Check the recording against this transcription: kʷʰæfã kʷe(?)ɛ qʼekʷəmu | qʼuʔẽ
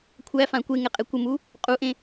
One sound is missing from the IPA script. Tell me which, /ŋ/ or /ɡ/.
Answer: ŋ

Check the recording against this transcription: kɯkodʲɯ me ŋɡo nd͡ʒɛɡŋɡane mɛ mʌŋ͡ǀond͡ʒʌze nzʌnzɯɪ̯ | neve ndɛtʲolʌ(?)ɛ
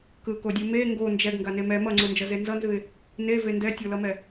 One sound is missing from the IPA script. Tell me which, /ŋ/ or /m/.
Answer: m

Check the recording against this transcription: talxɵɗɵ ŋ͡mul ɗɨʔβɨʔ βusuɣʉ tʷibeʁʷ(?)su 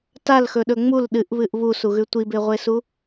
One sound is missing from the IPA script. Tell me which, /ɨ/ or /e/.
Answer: e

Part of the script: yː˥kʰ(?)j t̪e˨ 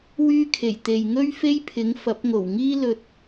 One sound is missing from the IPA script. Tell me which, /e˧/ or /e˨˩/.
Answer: e˨˩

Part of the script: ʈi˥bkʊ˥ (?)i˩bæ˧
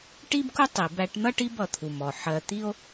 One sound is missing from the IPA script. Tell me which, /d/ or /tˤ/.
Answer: tˤ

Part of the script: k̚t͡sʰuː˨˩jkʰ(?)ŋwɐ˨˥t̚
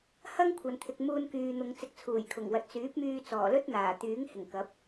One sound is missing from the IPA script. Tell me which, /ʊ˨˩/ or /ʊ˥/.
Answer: ʊ˨˩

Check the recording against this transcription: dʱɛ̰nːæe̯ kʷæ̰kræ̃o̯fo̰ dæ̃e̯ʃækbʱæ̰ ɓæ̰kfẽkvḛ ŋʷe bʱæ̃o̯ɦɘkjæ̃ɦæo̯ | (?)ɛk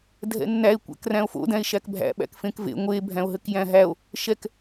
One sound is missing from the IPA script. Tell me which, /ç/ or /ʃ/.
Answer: ʃ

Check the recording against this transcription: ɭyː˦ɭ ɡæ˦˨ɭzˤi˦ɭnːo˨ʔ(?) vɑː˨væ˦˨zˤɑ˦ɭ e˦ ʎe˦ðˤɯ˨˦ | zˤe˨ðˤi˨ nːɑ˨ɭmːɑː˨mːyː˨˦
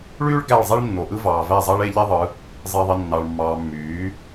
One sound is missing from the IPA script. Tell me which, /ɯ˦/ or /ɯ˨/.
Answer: ɯ˦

